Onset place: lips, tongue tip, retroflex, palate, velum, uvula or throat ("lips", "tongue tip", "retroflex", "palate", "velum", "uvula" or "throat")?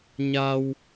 palate